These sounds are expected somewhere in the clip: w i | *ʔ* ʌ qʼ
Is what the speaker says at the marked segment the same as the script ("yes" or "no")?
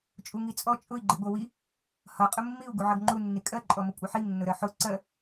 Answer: no